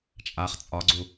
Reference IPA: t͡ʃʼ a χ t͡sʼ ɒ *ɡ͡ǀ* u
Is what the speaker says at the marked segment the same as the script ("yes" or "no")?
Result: yes